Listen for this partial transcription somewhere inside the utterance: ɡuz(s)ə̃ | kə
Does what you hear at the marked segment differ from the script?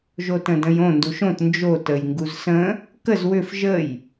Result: no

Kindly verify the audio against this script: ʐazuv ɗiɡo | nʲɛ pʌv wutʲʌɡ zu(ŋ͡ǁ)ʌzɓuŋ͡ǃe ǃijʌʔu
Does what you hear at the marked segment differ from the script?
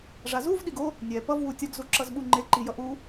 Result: yes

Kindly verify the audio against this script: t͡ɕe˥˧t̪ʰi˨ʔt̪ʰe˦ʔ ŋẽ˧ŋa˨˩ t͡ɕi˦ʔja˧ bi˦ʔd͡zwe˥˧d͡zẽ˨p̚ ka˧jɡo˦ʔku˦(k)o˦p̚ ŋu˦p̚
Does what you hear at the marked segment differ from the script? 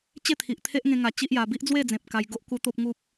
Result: yes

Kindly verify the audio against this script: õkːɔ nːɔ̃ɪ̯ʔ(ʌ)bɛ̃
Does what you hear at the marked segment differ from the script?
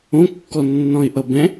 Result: no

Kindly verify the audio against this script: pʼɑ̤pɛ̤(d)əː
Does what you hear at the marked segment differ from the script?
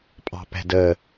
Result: no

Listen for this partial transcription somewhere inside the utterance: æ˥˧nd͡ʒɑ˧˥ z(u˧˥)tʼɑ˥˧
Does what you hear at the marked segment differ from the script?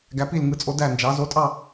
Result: yes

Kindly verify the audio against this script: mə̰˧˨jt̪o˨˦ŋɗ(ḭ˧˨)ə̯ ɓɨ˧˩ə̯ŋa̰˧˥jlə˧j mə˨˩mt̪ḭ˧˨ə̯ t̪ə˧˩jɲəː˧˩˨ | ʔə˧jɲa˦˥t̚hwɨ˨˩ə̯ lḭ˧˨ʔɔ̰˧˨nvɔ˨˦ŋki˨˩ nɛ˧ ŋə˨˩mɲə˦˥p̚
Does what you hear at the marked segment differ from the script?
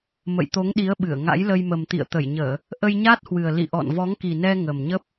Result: yes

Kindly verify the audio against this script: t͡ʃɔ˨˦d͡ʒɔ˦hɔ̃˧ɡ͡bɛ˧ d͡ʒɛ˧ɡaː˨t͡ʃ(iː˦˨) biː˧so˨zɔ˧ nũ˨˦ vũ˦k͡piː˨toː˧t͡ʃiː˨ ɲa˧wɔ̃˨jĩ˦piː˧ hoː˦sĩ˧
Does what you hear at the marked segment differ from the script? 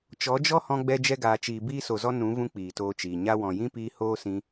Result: yes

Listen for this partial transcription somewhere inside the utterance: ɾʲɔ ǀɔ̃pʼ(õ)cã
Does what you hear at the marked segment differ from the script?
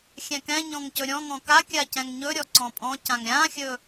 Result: yes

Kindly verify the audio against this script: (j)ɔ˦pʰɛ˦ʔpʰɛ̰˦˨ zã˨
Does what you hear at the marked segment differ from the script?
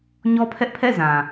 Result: yes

